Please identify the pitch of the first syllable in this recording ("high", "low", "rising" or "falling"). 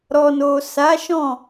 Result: low